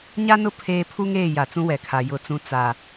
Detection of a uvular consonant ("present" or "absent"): absent